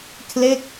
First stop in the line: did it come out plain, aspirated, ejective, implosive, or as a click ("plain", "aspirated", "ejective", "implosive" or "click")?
aspirated